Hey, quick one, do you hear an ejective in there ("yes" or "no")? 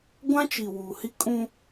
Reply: yes